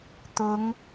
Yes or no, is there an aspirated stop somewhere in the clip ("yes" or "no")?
no